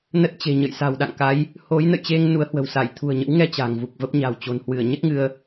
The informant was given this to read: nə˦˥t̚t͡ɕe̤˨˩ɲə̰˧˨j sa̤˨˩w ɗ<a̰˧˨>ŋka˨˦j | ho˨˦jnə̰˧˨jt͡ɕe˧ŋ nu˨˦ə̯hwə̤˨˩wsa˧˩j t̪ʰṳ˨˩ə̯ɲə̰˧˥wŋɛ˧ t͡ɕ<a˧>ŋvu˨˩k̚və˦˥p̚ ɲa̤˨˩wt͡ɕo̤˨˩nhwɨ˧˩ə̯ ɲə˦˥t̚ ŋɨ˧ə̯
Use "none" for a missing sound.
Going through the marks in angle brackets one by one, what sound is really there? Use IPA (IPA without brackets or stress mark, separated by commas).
a̰˧˨, a̤˨˩